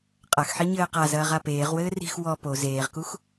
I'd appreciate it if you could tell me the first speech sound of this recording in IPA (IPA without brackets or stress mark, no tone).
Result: qʼ